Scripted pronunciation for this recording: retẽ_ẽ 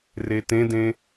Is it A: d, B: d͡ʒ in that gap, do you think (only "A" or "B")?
A